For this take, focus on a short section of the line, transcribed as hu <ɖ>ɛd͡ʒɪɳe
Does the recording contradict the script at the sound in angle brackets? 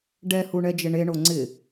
yes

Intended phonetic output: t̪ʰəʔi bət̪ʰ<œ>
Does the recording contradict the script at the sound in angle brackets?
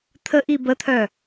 no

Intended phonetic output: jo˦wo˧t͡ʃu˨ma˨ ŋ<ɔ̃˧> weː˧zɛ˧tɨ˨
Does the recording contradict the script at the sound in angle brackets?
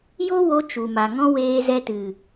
no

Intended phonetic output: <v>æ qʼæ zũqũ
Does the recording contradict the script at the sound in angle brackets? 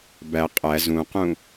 yes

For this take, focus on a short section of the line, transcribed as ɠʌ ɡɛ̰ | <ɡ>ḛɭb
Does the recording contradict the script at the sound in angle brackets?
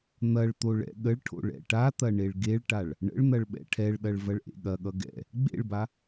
yes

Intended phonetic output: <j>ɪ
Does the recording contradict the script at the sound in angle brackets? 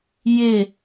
no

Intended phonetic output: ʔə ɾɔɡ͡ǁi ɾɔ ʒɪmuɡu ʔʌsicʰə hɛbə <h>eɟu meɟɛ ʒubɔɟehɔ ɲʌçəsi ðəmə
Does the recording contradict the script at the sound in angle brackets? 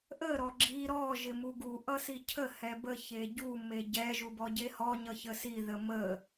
yes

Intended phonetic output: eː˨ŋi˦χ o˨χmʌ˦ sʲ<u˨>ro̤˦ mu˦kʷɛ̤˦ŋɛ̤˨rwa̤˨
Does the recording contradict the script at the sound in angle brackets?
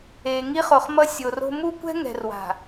yes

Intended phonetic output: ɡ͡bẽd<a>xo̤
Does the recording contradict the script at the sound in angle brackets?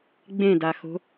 no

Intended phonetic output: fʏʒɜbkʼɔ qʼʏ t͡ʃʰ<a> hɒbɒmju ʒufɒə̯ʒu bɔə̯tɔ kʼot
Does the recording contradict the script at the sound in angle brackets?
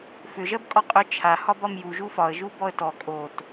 no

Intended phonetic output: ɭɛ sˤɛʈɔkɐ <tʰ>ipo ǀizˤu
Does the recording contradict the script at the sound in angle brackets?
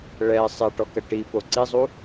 yes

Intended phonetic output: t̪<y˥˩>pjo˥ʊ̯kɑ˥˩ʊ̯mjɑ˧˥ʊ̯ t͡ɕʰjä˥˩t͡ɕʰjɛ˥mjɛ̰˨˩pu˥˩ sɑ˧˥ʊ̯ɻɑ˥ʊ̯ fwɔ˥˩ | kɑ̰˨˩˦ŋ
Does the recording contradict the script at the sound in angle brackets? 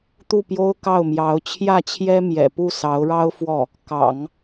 yes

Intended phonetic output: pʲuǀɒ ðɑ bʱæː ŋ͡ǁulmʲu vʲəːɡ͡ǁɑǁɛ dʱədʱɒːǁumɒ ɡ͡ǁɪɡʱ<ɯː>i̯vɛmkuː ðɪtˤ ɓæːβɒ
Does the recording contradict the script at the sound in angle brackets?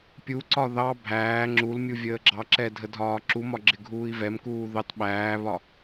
yes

